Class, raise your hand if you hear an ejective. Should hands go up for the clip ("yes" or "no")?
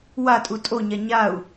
yes